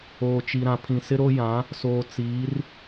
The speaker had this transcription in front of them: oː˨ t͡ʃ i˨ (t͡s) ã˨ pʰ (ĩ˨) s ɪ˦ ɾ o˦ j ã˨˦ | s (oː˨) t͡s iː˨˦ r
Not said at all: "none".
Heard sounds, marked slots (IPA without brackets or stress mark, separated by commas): ɾ, ĩ˨, oː˨